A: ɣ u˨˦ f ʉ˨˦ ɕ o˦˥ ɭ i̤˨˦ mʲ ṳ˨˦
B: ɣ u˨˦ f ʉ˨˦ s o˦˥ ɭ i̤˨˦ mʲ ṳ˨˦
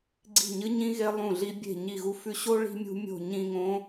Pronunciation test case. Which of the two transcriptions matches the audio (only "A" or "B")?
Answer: A